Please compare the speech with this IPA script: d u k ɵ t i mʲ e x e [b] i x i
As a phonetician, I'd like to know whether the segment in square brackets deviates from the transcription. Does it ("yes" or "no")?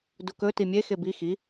no